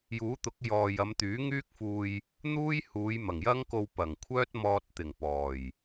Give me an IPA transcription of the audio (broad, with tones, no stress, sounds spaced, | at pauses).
j uː˨˥ t̪ ʊ˨˥ k̚ j ɔː˨ j ɐ˨˧ m t̪ yː˨˥ ŋ yː˥ k̚ f uː˧ j | n̪ uː˥ j h uː˨˧ j m ɐ˨˩ ŋ j ɐ˥ ŋ k o˧ w p ɐ˨˩ ŋ kʷʰ œː˥ t̚ m ɔː˧ t̚ t̪ ɪ˨˩ ŋ p ɔː˨˩ j